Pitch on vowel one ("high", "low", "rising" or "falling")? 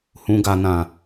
low